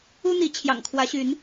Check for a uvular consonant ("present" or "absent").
absent